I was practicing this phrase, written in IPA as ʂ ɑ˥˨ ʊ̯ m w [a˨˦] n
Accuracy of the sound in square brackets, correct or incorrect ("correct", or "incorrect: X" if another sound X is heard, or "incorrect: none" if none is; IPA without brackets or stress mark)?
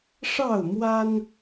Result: incorrect: a˦